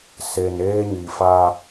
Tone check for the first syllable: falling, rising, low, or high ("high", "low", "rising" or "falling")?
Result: low